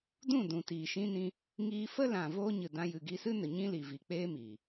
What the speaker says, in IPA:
d ũ˦˨ d ũ˨ t iː˨ ʃ ĩ˧ n ĩ˧ | ŋ iː˧ f ə˦ l ã˨ v oː˦ ɲ ɨ˨ d ã˧ j ɨ˨ ɡ i˧ s ɨ˦ n ə˨ ɲ ĩ˦ l i˨ v i˨ k͡p eː˦ m iː˨

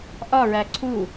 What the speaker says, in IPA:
ʔ ɒ ɹ æ ǀʰ u

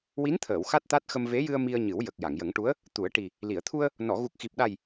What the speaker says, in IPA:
w i˧˥ n t̪ʰ əː˨˩˨ w x a˦˥ t̚ t̪ a˦˥ t̚ x ə˧ m v e˧˥ j ɨ˧ ə̯ m i˧ ə̯ ɲ ɨ˨˩˦ w j ə˨˩ k̚ j a˨˩˨ ŋ j ə˨˩˦ ŋ ʈ u˧˥ ə̯ | t̪ u˨˩˦ ə̯ ʈ i˨˩ | l i˨˩˨ ə̯ t̪ʰ u˧ ə̯ | n ɔ˨˩˨ ɣ u˨˩ k̚ x i˨˩ p̚ ɗ a˨˩ j

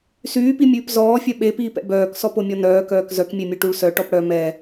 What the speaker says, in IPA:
s yː p i mʲ ʉː p z ɔː fʲ œ ɓ e p iː p ɛ̰ b œː k s ɔ p o mʲ ɔ n œː k œː k z œ k mʲ e mʲ œ ʈ u ɭ s œ ʈ ɔ p ɽ œ m ɛ

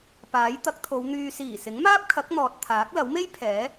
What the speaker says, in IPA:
p aː˨˥ j t̪ ɐ˨˥ k̚ t̪ʰ o˨˧ w n̪ yː˨ s iː˨˩ s ɪ˨˥ ŋ m aː˥ p̚ kʰ ɐ˨˥ k̚ n̪ ɔː˨ t̚ t̪ʰ aː˨˥ k̚ l ɐ˨˥ w m e˥ j pʰ ɛː˨˥

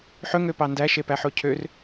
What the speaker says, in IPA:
ħ ɵ ŋ ø p ɑ n d æ ʃ e p æ ħ o cʰ ø r

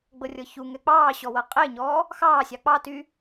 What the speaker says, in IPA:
ɡ͡b ɤ rʲ ɤ ç u ŋ ɛ k͡p ɑː ɕ ɔ w ɤ qʼ e ɲ ɔː | x ɑː sʲ ɑ k͡p ɑ t y

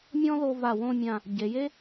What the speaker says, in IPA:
mʲ ɔ̃˥ ð o˧ v a˧˩ w õ˥˧ mʲ ã˧˩ | ɟ e˩˧ j e˥

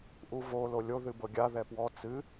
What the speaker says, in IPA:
ʔ u v o l o lʲ o ð ɨ b ɤ ɡʲ a ð ɛ p w ɔ t͡s ɨ

